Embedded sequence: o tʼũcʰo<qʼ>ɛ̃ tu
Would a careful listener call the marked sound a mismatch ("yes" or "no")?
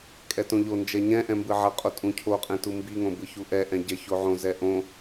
no